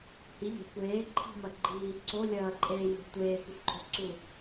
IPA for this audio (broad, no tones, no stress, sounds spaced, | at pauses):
h i ʎ e̤ kʷ eː ǃʰ i̤ m ɐ ɡ͡ǃ iː ǀ o lʲ ɐː ǃʼ eː j o̤ tʷ eː kʷ ɘ ǃʼ o̤ ǀ u